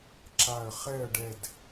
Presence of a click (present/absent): present